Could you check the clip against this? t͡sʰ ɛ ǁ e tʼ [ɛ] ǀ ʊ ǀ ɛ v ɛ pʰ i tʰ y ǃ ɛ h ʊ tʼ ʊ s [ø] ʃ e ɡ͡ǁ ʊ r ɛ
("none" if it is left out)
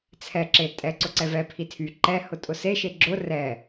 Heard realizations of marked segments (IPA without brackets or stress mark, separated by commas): ɛ, e